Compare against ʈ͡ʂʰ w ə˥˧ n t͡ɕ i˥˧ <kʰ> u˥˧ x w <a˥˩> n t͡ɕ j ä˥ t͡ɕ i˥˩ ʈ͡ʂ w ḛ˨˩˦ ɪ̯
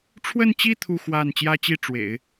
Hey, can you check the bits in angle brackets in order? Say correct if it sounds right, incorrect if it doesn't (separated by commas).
incorrect, correct